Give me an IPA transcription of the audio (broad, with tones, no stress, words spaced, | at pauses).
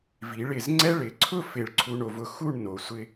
vi˩˧ɭɪ˧˩z ŋ͡ǀɛ˥ ɭɪ˩˧ǀʰʊ˥˧ fɪ˧˩ɭǀʰu˧ɳo˩˧vʊ˧ xu˥˧ɳ no˩˧sʷɪ˧